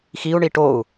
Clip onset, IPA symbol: x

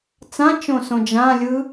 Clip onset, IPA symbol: t͡s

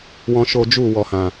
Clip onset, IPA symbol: w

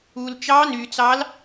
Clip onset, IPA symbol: u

